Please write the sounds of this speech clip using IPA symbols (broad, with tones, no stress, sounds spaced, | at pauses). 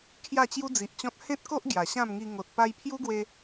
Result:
kʰ j a˥˧ t͡ɕ j u˦ d͡z i˨ ʔ t͡ɕ ɔ̃˦ t̚ h ẽ˦ t̚ k o˦ ʔ ɡ j a˨˩ ɕ ã˥˧ m ŋ i˧ ŋ o˨ t̚ p a˧ j pʰ j u˦ ɡ w e˧